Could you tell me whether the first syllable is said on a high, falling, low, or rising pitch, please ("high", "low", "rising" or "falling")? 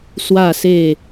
falling